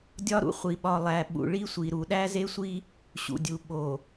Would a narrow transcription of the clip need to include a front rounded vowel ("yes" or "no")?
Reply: no